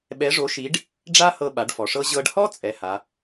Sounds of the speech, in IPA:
ɓ ɛ˧˥ ʐ o˧˥ ʃ i˧˥ ɖ | ɖ͡ʐ a˥ h ɤ˧ ɓ a˩˧ ɖ f ɔ˩ ʂ ɤ˧ ʑ ɤ˧ ɖ h ɔ˥ t͡sʼ ɛ˩˧ h a˩˧

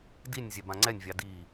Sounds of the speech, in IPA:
d i nʲ zʲ ɛ b ã ŋ͡ǀ ɛ nʲ vʲ ɑ d i

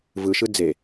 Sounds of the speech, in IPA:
v ɯ ʃ ɯ d͡z e

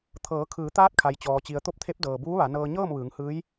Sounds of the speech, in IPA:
t̪ʰ ɤː˩˧ kʰ ɯː˩˧ t̪ aː˧˥ t̚ kʰ a˩ j t͡ɕ ɔː˩ t͡ɕ i˩ ə̯ t̪ o˥˨ p̚ t̪ʰ e˧˥ p̚ d ɤː˩ b uː˧˥ ʋ a˩˧ n ɤː˧ ɲ ɤː˥˨ m ʋ ɯː˩˧ ŋ h ɯː˧˥ j

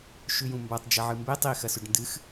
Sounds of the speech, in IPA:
ʃ ʉ j ũ m b a tˤ d͡ʒ ɐ ʕ ɨ m b e tˤ i x ɐ s ʉ ɖ n d ɨ x

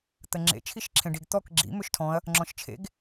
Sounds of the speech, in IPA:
t̪ ə ŋ͡ǁ ḛ t͡ʃʰ i ʃ ǁʰ ẽ ɖ i ɡ t̪ ɔ k ɡ͡ǁ ḭ m ø ʃ tʰ ɔ̃ ɐ̯ | ŋ͡ǁ ɔ̃ ʃ t͡ʃʰ ḛ ɡ

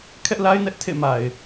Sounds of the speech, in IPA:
kʰ ɛ˦ ʔ l a˦ ɪ̯ n ɛ˦ ʔ tʰ ḛ˦˨ m a˨ ɪ̯

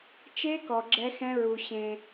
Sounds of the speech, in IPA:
t͡ʃ e˦˥ k ɔ˨ ɡ͡ǁ ɛ˦˥ x ɛ̃˦˥ ɹ u˨ ɕ ẽ˨

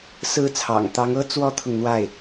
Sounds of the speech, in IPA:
s ɹ̩˥˩ t͡sʰ ɑ̰˨˩ ŋ t̪ ɑ˧˥ ŋ ɤ˥ t͡s w ɔ˥ t̪ʰ ʊ˨ ŋ n̪ w a˥˩ ɪ̯

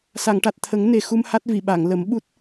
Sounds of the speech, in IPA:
s a˨˩˨ ŋ ʈ a˨˩ t̚ t̪ʰ ə˨˩˦ ŋ n e˨˩ x u˧ m h a˦˥ t̚ v i˨˩˨ ɓ a˨˩˨ ŋ l ə˨˩˦ m ɓ u˦˥ t̚

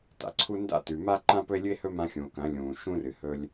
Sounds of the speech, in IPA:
t a̰˨ ǀʰ u˧ n d a̰˦ t ʉ˨ m a˦ ǃ ã˦ p ɵ˦ e̯ lʲ ɨ˦ e̯ h ɵ˦ m ã˧ xʲ ũ˨ o̯ k ɐ̃˨˦ lʲ ũː˨ ʃ ũ˦ r ɨ˨ h ɵ˧ lʲ

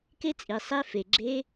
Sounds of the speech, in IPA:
k e˦˥ t͡sʼ i˩ sˤ e˦˥ f e˩ ɡ͡ǁ e˦˥

